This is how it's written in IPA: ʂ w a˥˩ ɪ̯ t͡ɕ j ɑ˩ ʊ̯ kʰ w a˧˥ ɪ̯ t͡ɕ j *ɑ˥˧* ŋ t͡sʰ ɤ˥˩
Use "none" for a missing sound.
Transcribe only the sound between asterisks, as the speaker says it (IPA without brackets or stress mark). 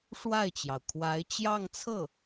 ɑ˥˧